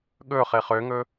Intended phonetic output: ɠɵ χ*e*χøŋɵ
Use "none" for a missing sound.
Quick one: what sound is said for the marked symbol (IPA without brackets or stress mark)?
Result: e